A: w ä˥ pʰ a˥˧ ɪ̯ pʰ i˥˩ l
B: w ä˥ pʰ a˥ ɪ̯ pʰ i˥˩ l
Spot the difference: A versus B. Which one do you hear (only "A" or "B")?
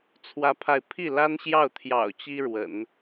A